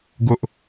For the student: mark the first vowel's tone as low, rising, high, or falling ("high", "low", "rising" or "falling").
high